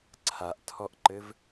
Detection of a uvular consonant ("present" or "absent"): absent